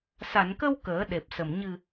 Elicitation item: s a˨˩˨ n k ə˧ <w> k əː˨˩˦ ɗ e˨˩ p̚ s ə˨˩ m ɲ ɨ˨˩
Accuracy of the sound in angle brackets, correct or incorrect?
correct